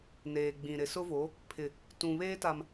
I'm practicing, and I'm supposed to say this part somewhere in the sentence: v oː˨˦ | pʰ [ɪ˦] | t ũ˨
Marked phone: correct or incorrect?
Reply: incorrect